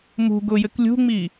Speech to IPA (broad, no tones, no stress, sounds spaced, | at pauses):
m ṳ ɡ ʊ j ɘ k lʲ ṳ ŋ͡m i